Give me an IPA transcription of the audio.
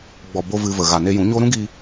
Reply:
ɡ͡b ɔ˨ b o˧ v ɨ˧ v ə˨ ɣ a˨ n e˧ j ũ˨˦ ɲ o˦ ɾ ũ˦ ɡ iː˧

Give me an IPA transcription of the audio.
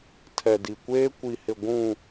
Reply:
tʰ ɛ˨ d i˨ kʷ eː˦ kʷ i˨ h ɪ˨ ɡʷ ũ˨

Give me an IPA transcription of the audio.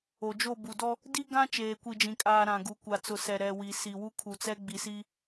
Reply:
o˨ d͡ʒ o˦˨ b u˨ d ɔ˦ | d i˦ ɡ ã˦ t͡ʃ eː˨ kʷ i˨ d͡ʒ ĩ˨ kʼ aː˨ ɾ ã˨ ɡ u˨ kʷ a˨ t͡s ʊ˨ s ɛ˨ ɾ ɛ˨ w i˨ s i˨ w u˦ kʰ u˨ t͡s ɛ˦ ɡ͡b i˨ s i˦

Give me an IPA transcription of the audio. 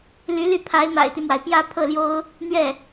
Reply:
l y˧˥ l y˥˩ pʰ a˧˥ ɪ̯ m a̰˨˩ ɪ̯ t̪ y˦ m w a˩ ɪ̯ p j ä˥˧ pʰ ɤ˥˩ l j o˥ ʊ̯ | n̪ ɥ ɛ˥˩

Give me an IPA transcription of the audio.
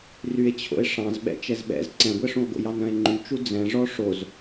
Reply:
r y e̯ t͡ɕʰ o̰ e̯ ʂ ɑ̃ z ɓ ɛ̰ t͡ʃ ɛ z ɓ ɛ̰ z ǀ ɛ̃ ɡʷ ɛ ʂ ũ o̯ ɡ o̰ j ɑ n œ̃ e̯ ŋ͡ǃ y t͡ʃ u d͡z ɛ̃ ʐ ɔ ʂ o z

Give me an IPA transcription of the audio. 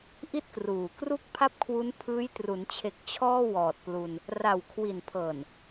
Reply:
ʔ i˥˩ t̚ k r uː˨˩ k r u˥˩ k̚ pʰ a˥˩ p̚ kʰ w u˦˥ n pʰ ɯː˦˥ j t r u˩˦ n t͡ɕʰ e˨˩ k̚ t͡ɕʰ ɔː˥˩ w ɔː˨˩ t̚ p l u˧ n | r a˨˩ w kʰ w i˨˩ n pʰ ɤː˨˩ n

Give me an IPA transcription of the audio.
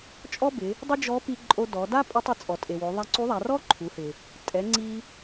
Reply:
t͡ʃʼ ɔ˥ b ɪ˩˧ | dˤ ɪ˥ d͡ʒ ɔ˧˥ p i˧ ǃʼ o˧ d ɔ˩˧ d a˥ pʼ ʊ˧˥ tˤ ɪ˧ t͡sʼ ɔ˩ tʼ e˩ w o˩˧ ðˤ a˧ ǀ u˧˥ ðˤ a˩˧ r ɔ˥ ǃʰ u˩˧ h ɪ˩ | tʼ ɛ˩˧ ŋ͡ǀ i˧

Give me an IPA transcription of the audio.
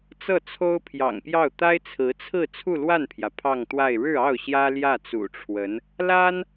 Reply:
t͡s ɤ˥˩ t͡sʰ o˥ ʊ̯ pʰ j ɑ̰˨˩ ŋ p j ɑ˥˩ ʊ̯ t̪ a˥ ɪ̯ t͡sʰ ɹ̩˧˥ t͡sʰ ɹ̩˥˧ t͡sʰ u˥˧ l w a˥˩ n pʰ j ä˩ pʰ ɑ˥˧ ŋ t̪ w a˥˧ ɪ̯ ɻ ɻ̩˥˧ ɑ˥˩ ʊ̯ ɕ j ä˥ l j ä˥˩ t͡s ṵ˨˩ ʈ͡ʂʰ w ə˧˥ n | l a˥ n

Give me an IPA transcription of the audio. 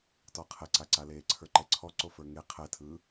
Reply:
t ɔ qʰ ɛ ǀ a ǀ a l eː ǀʰ ə˞ ǃ ɛ ǀʰ ɔ ǀ o f ə˞ ŋ e qʰ ɛ tʰ ɯː

